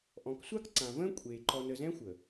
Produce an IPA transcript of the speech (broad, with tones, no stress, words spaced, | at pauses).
ʔɔ̃˨ksʷa˦k ǀã˨və̃ː˦ kʷʼeː˨ ǃɔ˨nə˨zɛ̃˦ xʷə˨